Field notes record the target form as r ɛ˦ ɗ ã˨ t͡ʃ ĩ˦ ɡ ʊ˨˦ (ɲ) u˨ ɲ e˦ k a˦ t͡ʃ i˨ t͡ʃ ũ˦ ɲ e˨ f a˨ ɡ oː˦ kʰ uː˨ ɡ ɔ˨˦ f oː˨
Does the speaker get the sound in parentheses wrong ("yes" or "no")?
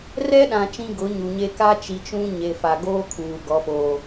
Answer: no